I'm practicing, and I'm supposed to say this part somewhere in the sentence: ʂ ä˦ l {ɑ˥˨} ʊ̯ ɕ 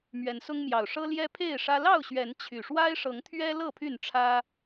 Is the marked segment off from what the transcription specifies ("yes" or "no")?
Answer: no